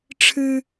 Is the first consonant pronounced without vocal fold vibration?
yes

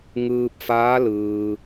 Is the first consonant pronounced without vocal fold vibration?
no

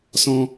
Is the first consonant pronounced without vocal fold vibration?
yes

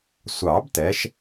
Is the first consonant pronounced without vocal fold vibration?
yes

